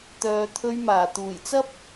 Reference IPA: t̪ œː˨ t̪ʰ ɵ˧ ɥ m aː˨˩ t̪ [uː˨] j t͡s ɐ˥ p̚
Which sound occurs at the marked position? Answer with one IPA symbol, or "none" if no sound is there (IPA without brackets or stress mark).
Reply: uː˨˩